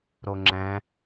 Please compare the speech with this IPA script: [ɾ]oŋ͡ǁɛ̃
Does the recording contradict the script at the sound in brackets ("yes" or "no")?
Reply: no